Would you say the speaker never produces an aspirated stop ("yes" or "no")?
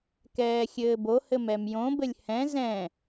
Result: yes